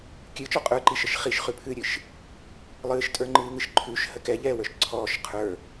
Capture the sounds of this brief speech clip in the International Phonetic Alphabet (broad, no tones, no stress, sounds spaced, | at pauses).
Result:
kʲ ɨ t͡ʃ ɔ qʼ ə˞ ǃ i ʃ ə ʃ χ i ʃ χ ʉ pʰ ɨː ɾʲ ɨ ʃ | lˠ ɨː ʃ tʼ ə˞ ŋ͡ǃ ɨː ŋ ɨ ʃ ǃʰ ʉ ʃ h ə k ɛ ʎ ɛː w ə˞ ʃ ǀʰ ɔː ʃ qʰ ə˞